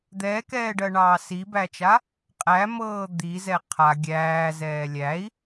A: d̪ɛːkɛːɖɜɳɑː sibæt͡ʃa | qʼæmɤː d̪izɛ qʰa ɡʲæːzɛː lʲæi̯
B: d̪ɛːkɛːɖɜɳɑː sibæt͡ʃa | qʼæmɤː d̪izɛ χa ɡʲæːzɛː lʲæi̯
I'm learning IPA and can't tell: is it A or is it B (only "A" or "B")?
A